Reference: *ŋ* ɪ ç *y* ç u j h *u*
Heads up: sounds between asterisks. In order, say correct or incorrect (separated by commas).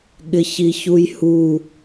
incorrect, incorrect, correct